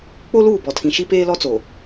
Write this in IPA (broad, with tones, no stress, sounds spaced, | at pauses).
k͡p o˦ l uː˦˨ b ɔ˨ tʰ ĩ˨ ʃ i˦ p eː˦ l ɔ˦ t͡s o˨